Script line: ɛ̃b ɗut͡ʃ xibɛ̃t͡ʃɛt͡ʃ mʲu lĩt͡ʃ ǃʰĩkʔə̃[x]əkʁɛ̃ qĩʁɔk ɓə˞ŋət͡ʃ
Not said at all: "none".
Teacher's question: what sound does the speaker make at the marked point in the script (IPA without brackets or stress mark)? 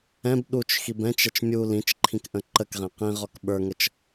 ǃ